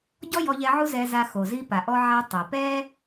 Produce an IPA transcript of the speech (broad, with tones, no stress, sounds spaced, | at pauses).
ɟ ɔ˥ j ɔ˧ ʎ ɛ˧ ʕ u˥ z ɛ˧ z a˧ x o˩ z i˧ p a˩ ʔ ɔ˧ ʕ a˧ tˤ ɛ˩ p ɛ˥